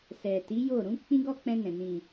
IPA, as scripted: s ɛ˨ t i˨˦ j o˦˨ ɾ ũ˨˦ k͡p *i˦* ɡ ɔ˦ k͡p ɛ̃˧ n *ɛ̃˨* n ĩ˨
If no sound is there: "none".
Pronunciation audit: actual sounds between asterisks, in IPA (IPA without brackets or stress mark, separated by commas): ĩ˦, ɛ̃˨